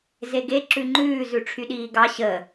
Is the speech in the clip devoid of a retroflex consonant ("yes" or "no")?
no